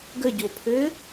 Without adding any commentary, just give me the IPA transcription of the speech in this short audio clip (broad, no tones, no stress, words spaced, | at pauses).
ɡəɟopʰɘː